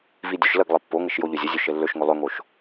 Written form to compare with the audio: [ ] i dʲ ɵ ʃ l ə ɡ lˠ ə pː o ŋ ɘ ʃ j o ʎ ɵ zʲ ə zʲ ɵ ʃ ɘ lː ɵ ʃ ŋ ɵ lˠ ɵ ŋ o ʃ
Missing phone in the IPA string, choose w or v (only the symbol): v